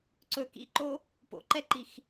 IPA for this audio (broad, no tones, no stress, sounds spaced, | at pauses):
ǀ ɵ k ḭ ǃ o | p o̰ ǃ ɛ ǃ i x